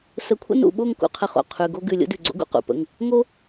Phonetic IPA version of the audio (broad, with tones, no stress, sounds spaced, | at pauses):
s ə˧˩ kʷʰ ə̰˥ n ṵ˧˩ ɓ o˥˨ ŋ k ṵ˧ qʰ ə˥˨ χ o̰˥˨ qʰ ʉ˩˧˩ ɡ o˥ ɡ ʉ˧˩ lʲ o̰˥ d ʉ˧˩ ɡ͡ǀ o̰˥ ɡ ṵ˥˨ q ṵ˩˧˩ p ə̰˩˧˩ ŋ | ŋ o˥